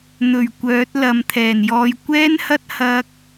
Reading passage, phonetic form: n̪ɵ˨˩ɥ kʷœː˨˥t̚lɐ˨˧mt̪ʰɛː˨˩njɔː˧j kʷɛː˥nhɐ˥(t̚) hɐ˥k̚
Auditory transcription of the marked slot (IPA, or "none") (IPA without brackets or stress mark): t̚